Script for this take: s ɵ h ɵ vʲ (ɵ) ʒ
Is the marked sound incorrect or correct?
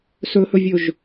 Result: correct